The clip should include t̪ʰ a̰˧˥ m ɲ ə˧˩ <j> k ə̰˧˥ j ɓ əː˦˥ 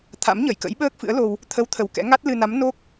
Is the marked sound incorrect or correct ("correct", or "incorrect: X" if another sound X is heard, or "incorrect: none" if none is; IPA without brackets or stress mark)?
correct